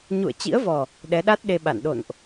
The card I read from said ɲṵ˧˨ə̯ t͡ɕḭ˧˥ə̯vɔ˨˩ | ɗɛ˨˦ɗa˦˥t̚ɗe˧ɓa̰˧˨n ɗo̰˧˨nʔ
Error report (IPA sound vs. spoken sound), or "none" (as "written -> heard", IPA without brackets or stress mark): none